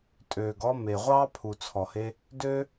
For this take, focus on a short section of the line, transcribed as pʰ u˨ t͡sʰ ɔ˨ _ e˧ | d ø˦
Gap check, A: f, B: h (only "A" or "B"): B